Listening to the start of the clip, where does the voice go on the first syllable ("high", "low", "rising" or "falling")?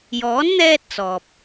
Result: rising